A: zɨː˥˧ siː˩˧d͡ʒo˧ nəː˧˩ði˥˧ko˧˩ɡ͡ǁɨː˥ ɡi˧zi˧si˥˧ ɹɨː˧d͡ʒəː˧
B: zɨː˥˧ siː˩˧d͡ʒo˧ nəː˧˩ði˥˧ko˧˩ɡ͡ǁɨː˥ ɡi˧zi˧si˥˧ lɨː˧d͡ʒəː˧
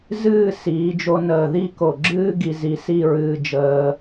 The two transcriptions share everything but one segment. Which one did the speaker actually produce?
A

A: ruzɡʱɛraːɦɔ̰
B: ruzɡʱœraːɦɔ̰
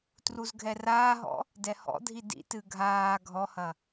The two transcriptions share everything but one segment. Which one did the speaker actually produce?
A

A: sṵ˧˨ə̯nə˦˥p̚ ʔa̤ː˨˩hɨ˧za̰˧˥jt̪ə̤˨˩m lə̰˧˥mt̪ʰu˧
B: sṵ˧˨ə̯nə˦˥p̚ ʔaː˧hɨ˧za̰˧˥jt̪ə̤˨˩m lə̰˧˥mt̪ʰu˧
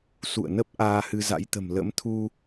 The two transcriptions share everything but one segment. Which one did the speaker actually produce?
B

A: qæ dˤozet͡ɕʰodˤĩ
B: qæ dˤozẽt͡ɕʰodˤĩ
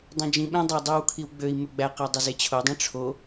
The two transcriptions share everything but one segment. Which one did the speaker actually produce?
A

